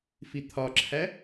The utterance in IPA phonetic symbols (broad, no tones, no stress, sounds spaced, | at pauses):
f i t̪ʰ ɒ ǁʰ æ